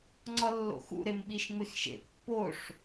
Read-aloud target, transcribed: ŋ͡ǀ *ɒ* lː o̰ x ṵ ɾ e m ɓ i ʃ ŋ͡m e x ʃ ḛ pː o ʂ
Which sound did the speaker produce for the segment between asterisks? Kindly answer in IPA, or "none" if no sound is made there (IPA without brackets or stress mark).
ɒ